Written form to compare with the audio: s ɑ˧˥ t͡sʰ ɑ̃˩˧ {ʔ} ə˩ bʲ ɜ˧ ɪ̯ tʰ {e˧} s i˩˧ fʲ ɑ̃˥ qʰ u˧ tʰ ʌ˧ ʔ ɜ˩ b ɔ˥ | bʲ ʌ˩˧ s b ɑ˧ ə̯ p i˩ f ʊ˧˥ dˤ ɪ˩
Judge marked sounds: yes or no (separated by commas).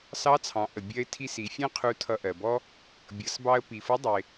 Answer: yes, no